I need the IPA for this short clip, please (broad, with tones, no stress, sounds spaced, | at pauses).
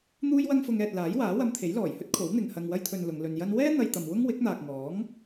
n̪ uː˥ j w ɐ˥ ŋ f ʊ˧ ŋ ɛː˨ t̚ l aː˨˥ j w aː˨˥ w ɐ˧ m t̪ʰ e˨˥ j l ɔː˨˩ j h ɵ˥ t̚ kʰ o˨˥ w n̪ ɪ˨ ŋ h ɐ˨ ŋ w ɐ˧ j t̪ʰ ɵ˨ n l ʊ˨˧ ŋ l ɵ˧ n j ɐ˧ n w ɛː˥ n̪ ɐ˧ j t̪ ɐ˨ m w ʊ˥ ŋ w ɪ˨˥ k̚ n̪ aː˨ k̚ ŋ ɔː˨˥ ŋ